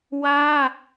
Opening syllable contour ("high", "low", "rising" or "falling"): high